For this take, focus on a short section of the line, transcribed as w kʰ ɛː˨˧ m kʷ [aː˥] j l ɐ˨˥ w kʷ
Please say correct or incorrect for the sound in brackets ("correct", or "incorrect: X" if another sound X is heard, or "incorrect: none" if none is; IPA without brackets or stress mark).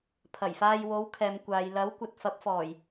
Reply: incorrect: aː˨˧